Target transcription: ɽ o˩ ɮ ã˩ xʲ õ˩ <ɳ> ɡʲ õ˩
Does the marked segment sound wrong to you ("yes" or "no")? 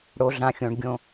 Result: no